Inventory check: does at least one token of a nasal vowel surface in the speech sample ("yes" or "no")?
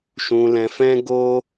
yes